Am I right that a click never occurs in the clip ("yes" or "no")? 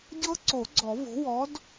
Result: no